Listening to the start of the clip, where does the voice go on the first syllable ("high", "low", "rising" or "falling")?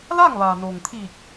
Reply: falling